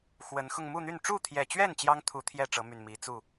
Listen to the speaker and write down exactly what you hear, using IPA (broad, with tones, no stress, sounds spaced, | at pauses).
x w ə˨˦ n x ʊ˧ ŋ m u˥˨ n̪ y˥˨ n ʈ͡ʂ u˥˨ t̪ʰ j ɛ˨˩ t͡ɕ ɥ ɛ˥˨ n t͡ɕ j ɑ˦ ŋ t̪ʰ u˨˦ t̪ʰ j ɛ˥˨ ʈ͡ʂ ɤ˨˦ m y˨˩ n m i˨˦ t͡s u˥˨